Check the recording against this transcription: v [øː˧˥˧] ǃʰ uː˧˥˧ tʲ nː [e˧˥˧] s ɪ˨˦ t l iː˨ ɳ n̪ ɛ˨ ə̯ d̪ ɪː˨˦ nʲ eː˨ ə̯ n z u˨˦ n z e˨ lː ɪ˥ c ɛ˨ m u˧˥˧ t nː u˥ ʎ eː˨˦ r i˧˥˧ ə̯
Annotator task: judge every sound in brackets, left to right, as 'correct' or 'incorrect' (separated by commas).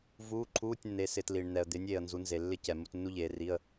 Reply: incorrect, incorrect